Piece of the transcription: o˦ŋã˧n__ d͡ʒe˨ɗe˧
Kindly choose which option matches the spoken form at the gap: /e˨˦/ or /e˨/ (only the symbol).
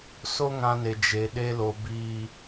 e˨